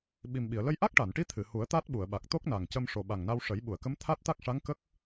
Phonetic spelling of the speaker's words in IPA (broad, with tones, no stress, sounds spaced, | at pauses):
ɓ i˨˩ m ɓ i˨˩˨ ə̯ l ə˧ j ʔ a˦˥ k̚ ʈ a˨˩˨ n ʈ i˧˥ t̪ʰ ɨ˨˩˨ h u˨˩˦ ə̯ t̪ a˦˥ t̚ ɓ u˨˩˨ ə̯ ɓ a˨˩ k̚ t̪ o˦˥ k̚ n a˨˩ ŋ c ə˧ m ʂ o˨˩ ɓ a˨˩ ŋ n a˧ w ʂ ə˨˩˦ j ɓ u˨˩˨ ə̯ k ə˧˥ m t̪ʰ a˦˥ t̚ t̪ a˦˥ k̚ ʂ a˧˥ ŋ k ə˦˥ k̚